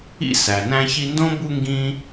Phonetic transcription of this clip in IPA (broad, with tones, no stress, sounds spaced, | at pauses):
ḭ˥ s æ˩ n æ̃˦ ç i˦ n d õ˥ b u˦ ŋ ɡ ĩ˥